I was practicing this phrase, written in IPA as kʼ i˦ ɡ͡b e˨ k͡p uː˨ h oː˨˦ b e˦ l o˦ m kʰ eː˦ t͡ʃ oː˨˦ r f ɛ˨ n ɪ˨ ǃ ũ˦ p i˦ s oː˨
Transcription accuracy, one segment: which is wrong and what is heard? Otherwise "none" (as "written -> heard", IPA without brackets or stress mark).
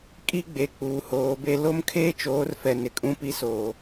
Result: ǃ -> kʼ